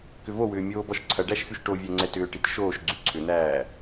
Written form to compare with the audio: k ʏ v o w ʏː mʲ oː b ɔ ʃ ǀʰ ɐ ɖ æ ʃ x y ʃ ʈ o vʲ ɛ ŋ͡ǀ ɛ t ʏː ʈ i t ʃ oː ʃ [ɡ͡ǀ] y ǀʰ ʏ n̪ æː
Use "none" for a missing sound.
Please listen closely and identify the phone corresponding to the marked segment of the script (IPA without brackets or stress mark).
ɡ͡ǀ